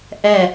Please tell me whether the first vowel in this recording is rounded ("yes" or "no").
no